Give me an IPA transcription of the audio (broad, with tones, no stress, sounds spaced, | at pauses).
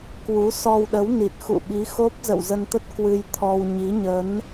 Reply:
k w u˨˦ s ɔ˧ w ɗ ə˨˦ w n i˨˩ t̚ x ṵ˧˨ ɓ i˨˦ x o˦˥ p̚ z ə̰˧˨ w z ə˧ n t̪ ə˦˥ t̚ k w ɨ˧ j t̪ʰ ɔ˧ w ɲ i˨˦ ɲ ə˨˦ n